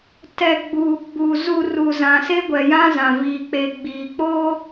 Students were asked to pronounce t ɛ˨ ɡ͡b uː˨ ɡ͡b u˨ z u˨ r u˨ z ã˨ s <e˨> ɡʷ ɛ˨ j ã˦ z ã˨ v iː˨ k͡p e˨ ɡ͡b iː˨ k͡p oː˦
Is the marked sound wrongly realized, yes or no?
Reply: yes